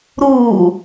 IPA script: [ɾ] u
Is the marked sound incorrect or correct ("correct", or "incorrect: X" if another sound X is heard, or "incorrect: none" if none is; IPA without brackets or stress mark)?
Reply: correct